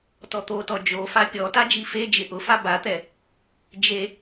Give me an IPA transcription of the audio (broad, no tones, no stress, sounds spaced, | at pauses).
t ɔ t̪ o t ɔ d͡ʒ o f a pʲ ɔ t a d͡ʒ i f e d͡ʒ ɪ ʔ ʊ f a b a t̪ ɛ | d͡ʒ e